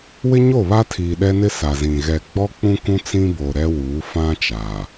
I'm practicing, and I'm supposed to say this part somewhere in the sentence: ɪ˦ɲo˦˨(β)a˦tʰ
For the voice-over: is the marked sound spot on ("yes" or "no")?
yes